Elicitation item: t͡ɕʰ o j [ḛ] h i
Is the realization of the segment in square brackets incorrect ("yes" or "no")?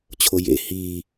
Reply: no